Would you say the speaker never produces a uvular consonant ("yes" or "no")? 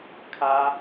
yes